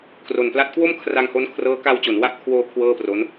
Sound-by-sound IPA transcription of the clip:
kro˨˩npla˦˥t̚ kwo˥˩mkʰra˧ŋ ho˦˥nkʰrɤː˦˥ ka˧wt͡ɕo˩˦nwa˦˥ʔkʰwoː˧ kʰwɤː˥˩pro˦˥n

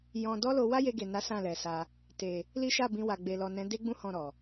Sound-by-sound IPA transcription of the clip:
jɔ̃˧ dɔ˦lo˧ wa˦je˧ɡe˨na˨˦ sã˦˨lɛ˨sa˧ | te˨ | li˦ʃa˦˨bĩ˧wa˨ ɡ͡be˨lɔ˨nɛ̃˨˦ de˦ɡ͡bũ˦ hɔ̃˦˨ɾɔ˨

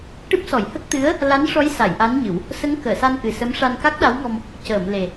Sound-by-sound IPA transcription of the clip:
ʈɨ˦˥p̚sɔ˨˩˦jhə˦˥k̚ t̪ɨ˧˥ə̯ | la˧˥nʂɔ˧˥jsa˨˩˨j ʔa˧˥nɲɨ˨˩˦w | sə˧˥ŋkəː˨˩˨sa˧nʔɨ˨˩ sə˧˥m ʂa˧nka˦˥k̚ɗa˧˥wŋɔ˧m | cəː˨˩˨mle˨˩

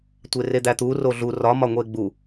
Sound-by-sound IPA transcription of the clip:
tʷered̪æt̪u roɮu rɒ mɒŋʷeɡ͡bu

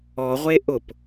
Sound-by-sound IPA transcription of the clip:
ɔʁʷe ʔʊp

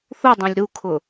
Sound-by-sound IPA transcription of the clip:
θudˤõlʲ ɾukʰʊ

